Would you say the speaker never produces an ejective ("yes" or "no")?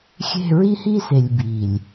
yes